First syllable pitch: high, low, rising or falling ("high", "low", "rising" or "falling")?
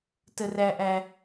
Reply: high